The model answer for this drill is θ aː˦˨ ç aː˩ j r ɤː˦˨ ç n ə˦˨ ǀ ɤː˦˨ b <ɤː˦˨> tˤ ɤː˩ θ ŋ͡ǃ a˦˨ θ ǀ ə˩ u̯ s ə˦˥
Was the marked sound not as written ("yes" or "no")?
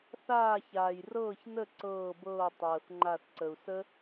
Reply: no